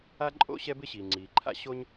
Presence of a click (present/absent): present